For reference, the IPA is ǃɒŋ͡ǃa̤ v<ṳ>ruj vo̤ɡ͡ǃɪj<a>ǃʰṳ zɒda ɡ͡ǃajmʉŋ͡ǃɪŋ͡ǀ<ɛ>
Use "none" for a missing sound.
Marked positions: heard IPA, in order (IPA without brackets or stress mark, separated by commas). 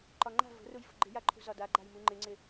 o̤, a, ɪ